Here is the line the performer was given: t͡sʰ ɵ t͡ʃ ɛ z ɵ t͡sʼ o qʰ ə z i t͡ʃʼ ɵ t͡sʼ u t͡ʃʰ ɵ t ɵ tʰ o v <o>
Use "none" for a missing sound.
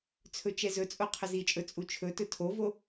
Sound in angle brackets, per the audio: o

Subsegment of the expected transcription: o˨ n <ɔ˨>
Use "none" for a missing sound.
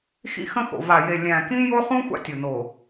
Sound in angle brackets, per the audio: o˨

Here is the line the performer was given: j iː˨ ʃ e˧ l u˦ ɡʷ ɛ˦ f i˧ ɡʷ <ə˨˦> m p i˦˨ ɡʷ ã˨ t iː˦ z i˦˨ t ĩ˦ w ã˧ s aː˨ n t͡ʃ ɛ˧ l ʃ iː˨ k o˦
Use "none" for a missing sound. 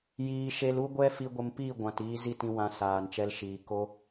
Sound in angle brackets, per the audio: ə˧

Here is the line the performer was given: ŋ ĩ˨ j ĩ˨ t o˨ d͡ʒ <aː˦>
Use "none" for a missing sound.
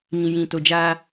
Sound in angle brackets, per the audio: aː˦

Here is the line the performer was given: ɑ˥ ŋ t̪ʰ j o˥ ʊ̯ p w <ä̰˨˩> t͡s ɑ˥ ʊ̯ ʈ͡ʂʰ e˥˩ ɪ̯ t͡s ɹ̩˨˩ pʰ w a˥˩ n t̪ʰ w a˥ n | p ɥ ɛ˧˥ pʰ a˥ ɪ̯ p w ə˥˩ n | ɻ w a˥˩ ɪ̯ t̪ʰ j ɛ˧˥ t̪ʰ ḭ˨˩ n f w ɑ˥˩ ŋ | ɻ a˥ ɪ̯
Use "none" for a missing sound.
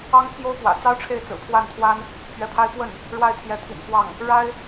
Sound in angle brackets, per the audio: ä̰˨˩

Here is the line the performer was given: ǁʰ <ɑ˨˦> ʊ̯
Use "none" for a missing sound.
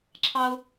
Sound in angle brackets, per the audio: ɑ˦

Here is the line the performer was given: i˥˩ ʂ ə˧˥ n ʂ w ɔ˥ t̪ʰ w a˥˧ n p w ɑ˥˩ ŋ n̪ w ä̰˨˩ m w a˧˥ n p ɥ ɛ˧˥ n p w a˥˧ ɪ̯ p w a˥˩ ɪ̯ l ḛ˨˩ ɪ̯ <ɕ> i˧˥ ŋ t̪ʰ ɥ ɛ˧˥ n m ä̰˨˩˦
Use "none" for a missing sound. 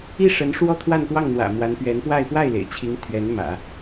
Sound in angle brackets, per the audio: t͡ɕʰ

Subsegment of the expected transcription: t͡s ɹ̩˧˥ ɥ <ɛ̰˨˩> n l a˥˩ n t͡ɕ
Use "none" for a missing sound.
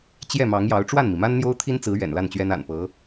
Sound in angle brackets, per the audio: ɛ̰˨˩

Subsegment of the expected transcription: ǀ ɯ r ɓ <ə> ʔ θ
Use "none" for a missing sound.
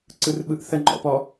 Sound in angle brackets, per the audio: ɯ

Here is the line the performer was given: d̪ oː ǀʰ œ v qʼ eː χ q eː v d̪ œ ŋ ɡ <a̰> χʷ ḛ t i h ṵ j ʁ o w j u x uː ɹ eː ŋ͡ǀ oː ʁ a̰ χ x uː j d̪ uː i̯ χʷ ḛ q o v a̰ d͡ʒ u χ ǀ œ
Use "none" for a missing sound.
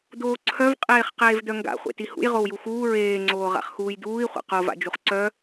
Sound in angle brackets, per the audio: a̰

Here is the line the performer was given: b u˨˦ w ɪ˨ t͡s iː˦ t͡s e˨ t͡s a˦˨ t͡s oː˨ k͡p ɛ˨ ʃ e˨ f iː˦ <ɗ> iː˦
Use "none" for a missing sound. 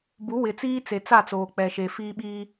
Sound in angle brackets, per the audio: ɓ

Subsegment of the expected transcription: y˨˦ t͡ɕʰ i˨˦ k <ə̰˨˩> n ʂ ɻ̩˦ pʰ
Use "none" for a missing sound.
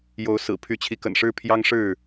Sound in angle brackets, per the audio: ə̰˨˩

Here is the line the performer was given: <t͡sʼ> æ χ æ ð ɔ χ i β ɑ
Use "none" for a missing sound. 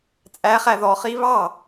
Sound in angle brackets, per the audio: t͡sʼ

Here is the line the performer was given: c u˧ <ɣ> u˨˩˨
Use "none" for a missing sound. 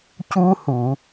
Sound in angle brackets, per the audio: h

